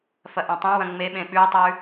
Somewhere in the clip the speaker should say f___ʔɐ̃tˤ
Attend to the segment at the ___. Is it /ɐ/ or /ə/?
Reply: ɐ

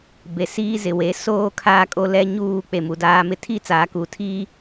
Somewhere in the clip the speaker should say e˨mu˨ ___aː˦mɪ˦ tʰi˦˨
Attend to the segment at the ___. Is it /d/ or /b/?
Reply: d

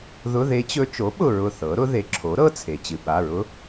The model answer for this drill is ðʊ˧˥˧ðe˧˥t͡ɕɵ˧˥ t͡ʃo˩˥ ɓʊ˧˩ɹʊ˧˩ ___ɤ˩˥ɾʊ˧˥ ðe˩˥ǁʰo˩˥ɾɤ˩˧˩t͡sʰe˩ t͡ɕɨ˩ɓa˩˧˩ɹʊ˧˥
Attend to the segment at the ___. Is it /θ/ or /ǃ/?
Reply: θ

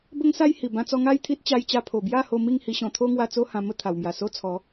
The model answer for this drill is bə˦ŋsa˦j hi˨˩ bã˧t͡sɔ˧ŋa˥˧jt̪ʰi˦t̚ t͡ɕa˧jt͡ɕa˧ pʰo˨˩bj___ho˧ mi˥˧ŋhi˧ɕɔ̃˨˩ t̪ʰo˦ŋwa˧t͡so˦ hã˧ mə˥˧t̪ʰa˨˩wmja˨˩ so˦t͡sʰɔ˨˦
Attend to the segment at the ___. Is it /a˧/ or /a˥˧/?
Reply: a˥˧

